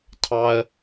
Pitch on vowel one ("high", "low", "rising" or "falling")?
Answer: high